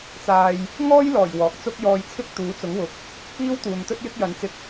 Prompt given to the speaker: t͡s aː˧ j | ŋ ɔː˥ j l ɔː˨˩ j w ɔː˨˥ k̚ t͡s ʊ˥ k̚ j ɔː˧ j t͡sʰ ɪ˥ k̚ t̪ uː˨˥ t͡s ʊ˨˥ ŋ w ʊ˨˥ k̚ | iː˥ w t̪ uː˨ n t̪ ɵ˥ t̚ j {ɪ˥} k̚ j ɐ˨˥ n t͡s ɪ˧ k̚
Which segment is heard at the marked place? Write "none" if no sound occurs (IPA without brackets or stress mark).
ɪ˥